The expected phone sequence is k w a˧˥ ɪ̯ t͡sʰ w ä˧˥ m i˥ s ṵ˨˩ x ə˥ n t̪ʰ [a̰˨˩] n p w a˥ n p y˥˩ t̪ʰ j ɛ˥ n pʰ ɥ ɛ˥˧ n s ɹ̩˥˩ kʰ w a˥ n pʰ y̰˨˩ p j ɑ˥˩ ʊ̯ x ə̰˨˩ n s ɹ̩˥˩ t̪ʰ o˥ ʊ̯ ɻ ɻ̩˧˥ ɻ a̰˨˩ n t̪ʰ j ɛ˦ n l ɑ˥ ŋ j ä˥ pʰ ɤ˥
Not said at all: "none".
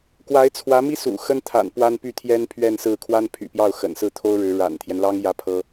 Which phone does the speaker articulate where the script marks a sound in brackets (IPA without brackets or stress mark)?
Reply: a̰˨˩